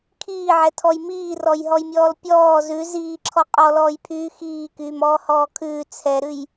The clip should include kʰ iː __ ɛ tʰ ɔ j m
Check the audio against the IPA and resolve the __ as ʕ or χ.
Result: ʕ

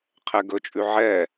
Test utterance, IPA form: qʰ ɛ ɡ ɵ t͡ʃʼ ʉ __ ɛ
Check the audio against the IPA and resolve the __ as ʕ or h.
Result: ʕ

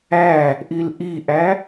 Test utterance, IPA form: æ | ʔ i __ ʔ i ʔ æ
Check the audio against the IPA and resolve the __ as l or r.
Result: l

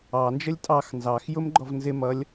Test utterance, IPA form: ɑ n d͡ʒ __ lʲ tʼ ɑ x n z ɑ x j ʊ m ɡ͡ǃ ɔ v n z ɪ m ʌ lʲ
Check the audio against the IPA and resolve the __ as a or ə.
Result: ə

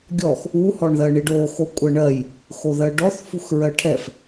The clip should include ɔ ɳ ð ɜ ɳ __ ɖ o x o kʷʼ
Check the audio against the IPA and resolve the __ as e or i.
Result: i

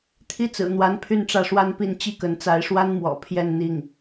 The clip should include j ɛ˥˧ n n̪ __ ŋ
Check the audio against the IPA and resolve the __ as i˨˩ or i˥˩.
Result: i˥˩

